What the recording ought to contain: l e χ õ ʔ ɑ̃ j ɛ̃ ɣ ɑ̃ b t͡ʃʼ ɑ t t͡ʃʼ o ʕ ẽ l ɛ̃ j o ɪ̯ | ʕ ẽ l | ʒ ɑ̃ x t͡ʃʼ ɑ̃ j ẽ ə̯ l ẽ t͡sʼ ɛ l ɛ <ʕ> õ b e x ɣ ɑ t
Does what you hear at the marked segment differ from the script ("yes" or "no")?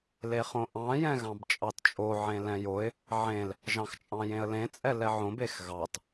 no